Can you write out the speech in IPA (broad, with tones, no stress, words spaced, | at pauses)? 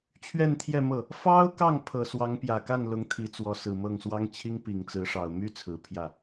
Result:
t͡ɕʰɥɛ˥˧nt̪ʰjɛ˥˧mɤ˥˩ | fɑ˥ʊ̯kɑ˥˩ŋ pʰɤ˨˩ swɑ˧˥ŋpjä˨˩ka˥˩nlʊ˧˥ŋ t̪ʰi˧˥t͡swɔ˧˥ sɹ̩˨˩mɤ˥˩ŋswɑ˥ŋ t͡ɕʰi˥ŋpi˨˩ŋt͡sɹ̩˧˥ʂɑ˨˩ʊ̯ my˥ t͡sʰɹ̩˨˩pʰjä˥˩